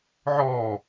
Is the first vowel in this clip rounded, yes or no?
yes